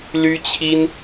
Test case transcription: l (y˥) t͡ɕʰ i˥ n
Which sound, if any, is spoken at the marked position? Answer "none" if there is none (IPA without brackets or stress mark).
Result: y˥